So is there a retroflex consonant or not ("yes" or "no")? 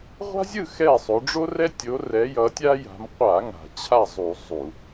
yes